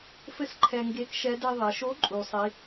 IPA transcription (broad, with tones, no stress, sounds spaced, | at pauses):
f ɘ˥ s ǃʰ ɛ˧ ŋ ɡ e˧˥ k ʃ ɛ˧˥ d e˧ ðˤ e˩˧ ʃ o˧˥ ǃʼ u˩ sˤ i˩˧